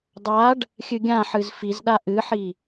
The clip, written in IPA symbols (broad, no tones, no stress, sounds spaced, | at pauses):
dˤ a ɖ | xʲ ɨ ɡʲ ã ħ ɨ z f i z ɗ a ʔ ɨ ħ i